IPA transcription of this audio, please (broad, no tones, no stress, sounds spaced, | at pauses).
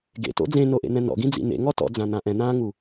ɡ ḛ t o̰ d͡z ẽ n o ʔ ḛ n̪ ɛ̃ n ɔ̰ ɡ ĩ d͡z ḭ n̪ ḛ ŋ ɔ t ɔ̰ d͡z ã n̪ ã ʔ ɛ̃ n̪ ãː ŋ u